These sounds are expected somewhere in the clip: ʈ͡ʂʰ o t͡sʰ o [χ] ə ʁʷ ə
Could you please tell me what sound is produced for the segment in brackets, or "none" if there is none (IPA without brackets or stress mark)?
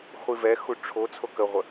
k